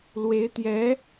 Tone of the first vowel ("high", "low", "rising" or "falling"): rising